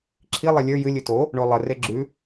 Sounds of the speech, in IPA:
ǁʰi lˠɛlʲə˞ jɨ lʲɨto | ɳolˠə reɡ͡ǁʉ

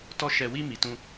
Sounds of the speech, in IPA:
tɔ˧ ʃɛ˨wi˧ mi˨tũ˧

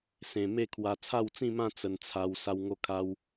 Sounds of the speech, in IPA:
sẽ˨˩me˥˧kʰwa˧ t͡sʰa˥˧wt͡sĩ˥˧mã˥˧ t͡sə˧nt͡sʰa˧w sa˧wŋo˧kʰa˧w

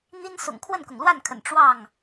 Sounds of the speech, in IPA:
n̪i˦n sʊ̰˨˩ŋ kʰwə˥˨nkʊ˩ŋlwa˥˨nkʰə̰˨˩n ʈ͡ʂwɑ˥˨ŋ

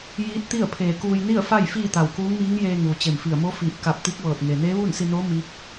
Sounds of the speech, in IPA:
jiː˧˥t̚t̪i˥˨ə̯ pʰeː˧˩kuː˧j ni˥˨ə̯fa˥˨j fiː˥˨t̪a˧˩wkuː˧˥ŋmiː˧˥ŋ jeː˧ŋuː˩ t͡ɕe˧˩mfi˧˩ə̯ mo˧˥fiː˧˩p̚ ka˧˩p̚t̪i˧˥k̚ ʋɤː˧˩t̚ŋe˩ neː˧˥ʋuː˥˨nsi˧noː˧˥ mi˧˥k̚

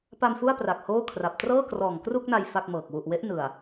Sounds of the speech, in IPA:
pa˧m fu˥˩a̯pra˨˩k̚ hoː˥˩kʰra˨˩p̚ trɤː˥˩krɔː˨˩ŋkru˥˩k̚na˧j fa˥˩k̚mɤː˨˩k̚ wu˨˩ʔwe˦˥ʔ nɯ˨˩a̯

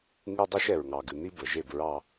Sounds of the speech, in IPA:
ŋɨ˦ dˤo˦ʃɛ˨ɹŋɑ˨ɡɨ˨ n̪i˦ bə˨ ʒe˦˨bɹɑ˦

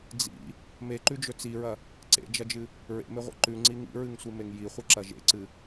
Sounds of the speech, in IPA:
d͡zḭ | meǃʉd͡ʒɵ t͡siɹɐ | ǀḛd͡ʒɐd͡ʒɨ | ɹḛmeʁʷḛ ǃʉŋ͡ǀi ŋḭɹɨŋsʷimeŋ jiχʷɨǁɐ ʒḛǀɨ

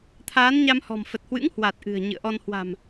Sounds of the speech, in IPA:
t̪ʰaː˨˦nɲa˧mhɔ̤˨˩m fə˨˩t̚hwɨ̰˧˥ŋhwa˨˩t̚ ʔɨ̤˨˩ə̯ ɲɨ̰˧˨ə̯ʔɔ˧n hwa̤˨˩m

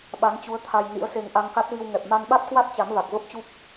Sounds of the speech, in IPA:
ɓa˨˦nt͡ɕu˨˦ə̯ t̪ʰa˧j nḭ˧˥ə̯se˧ŋ ʔa˧ŋka˦˥t̚vi˧w ŋɛ˨˩p̚ma˧nɓa˦˥t̚kwa˦˥t̚ t͡ɕa˨˦mva˨˩k̚və˦˥p̚ t͡ɕu˦˥p̚

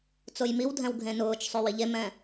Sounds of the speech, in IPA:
t͡sojmiwdʱɛ̃w ɡʱẽnʊːt͡ʃsˤo wiʎemɛ̃

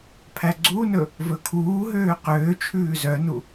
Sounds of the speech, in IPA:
pʰæɡ͡ǀunɵ | vɵkʰuːɦøː qøːt͡ʃʰʉː zœnu

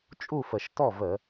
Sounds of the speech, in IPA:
t͡ʃʼu˥˨fə˨˩ʃ tɔ˥˨və˧˩˧

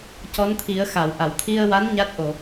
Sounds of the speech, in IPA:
cɔ˧˥nt̪ʰi˨˩˦ə̯ xa˨˩˨wʔa˨˩˨w t̪ʰi˧ə̯wa˧˥n ɲa˦˥t̚ʔo˨˩˨

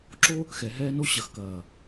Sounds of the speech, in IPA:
ǁo˦ | xɛ˨ɦɛː˦no˦ ɕɐ˨xkɐː˨

